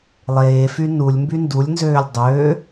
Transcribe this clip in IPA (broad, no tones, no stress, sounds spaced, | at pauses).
lˠ eː f y n u lʲ m b y n d u lʲ n z øː lʲ dˤ øː